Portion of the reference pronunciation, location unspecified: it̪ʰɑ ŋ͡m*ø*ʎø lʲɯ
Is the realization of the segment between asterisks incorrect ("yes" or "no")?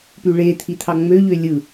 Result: no